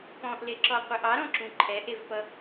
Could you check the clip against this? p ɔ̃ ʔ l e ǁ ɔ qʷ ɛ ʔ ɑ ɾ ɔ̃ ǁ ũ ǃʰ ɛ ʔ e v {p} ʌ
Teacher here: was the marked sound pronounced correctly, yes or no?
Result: yes